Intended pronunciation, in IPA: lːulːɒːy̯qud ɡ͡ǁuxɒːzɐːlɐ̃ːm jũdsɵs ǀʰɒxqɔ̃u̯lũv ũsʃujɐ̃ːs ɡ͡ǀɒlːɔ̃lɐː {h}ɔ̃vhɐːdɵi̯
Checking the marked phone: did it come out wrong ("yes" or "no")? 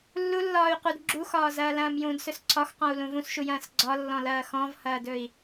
yes